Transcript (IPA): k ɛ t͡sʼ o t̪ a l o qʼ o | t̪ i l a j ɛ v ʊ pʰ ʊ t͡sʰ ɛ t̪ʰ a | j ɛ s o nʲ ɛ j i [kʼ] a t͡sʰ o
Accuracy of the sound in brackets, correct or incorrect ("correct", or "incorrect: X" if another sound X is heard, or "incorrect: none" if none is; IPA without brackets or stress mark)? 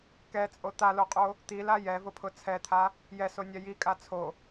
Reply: correct